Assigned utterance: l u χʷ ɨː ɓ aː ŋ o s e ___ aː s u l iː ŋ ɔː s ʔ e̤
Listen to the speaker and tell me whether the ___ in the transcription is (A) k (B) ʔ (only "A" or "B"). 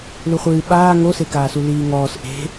A